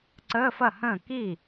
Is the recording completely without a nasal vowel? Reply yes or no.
no